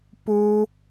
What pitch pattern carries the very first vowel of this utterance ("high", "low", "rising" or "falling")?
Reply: low